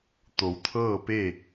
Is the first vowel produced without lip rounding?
no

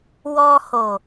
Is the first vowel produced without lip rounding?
no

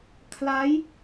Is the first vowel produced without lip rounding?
yes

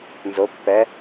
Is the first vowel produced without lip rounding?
no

